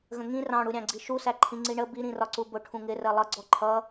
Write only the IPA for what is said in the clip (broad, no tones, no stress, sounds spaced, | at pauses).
ɣ ə̃ ŋ ĩ r ɑ̃ ɽ u ɾʲ ɑ̃ ɡ͡ǀ i ʃ u s æ ǃʰ ĩ ŋ͡ǀ i ɳ ə b i ɾ ĩ r ɒ ǀ u b ʊ ʈʰ ũ ŋ ɪ r ɜ lˠ ʌ ɡ͡ǀ ɔ ǃʰ ʌ